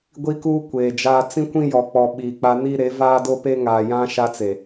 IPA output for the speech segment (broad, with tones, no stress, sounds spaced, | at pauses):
ɡʷ i˦ k uː˦ kʷ eː˨ d͡ʒ aː˦ t͡s ĩ˦ kʷ ĩ˦ j ɔ˨ k͡p ɔ˨ ɓ iː˨ k͡p a˦ n i˦ ɾ e˨˦ v aː˦ d o˦ p e˦ ŋ aː˨ j ã˦ ʃ a˦ t͡s e˨